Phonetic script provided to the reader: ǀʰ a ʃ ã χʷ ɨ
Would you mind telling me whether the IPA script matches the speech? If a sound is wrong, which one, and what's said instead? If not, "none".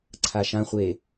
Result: ɨ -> e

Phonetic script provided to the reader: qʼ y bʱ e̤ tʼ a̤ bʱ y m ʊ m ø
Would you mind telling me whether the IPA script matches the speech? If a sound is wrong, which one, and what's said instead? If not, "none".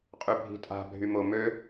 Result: e̤ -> i̤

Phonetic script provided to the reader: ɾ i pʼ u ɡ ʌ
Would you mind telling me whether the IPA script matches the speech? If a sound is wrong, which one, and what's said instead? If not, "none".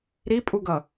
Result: none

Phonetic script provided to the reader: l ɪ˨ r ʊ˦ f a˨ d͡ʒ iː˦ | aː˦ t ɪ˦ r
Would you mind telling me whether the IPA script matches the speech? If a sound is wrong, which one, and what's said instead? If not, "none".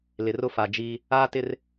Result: none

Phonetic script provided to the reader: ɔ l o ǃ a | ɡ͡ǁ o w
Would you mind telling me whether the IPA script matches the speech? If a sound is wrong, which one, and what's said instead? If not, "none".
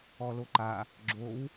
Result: none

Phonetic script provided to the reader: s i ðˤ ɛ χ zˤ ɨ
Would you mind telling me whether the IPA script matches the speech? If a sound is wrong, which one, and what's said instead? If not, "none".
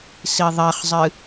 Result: none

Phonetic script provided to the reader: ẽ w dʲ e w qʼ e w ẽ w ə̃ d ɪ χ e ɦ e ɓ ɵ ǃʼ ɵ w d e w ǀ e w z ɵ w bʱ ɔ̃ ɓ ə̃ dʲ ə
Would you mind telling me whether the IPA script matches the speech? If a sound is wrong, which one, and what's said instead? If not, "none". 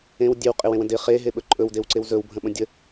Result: ɔ̃ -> ə̃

